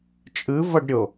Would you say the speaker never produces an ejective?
no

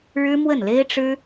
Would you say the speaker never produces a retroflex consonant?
no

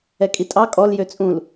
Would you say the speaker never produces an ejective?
no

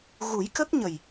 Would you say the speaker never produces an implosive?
yes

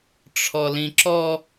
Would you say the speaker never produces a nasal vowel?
no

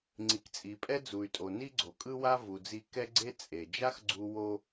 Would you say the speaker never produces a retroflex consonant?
yes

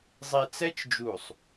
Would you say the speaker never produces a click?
yes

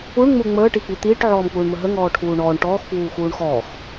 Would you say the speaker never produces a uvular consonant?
yes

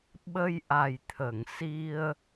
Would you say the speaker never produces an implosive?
no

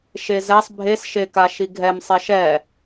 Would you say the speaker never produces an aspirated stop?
yes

